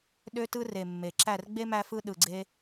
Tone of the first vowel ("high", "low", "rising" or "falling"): high